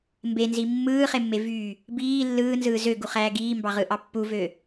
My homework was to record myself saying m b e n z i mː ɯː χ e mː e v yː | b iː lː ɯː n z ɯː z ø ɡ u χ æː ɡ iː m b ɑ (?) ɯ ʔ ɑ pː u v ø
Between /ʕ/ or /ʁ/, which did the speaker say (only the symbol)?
ʁ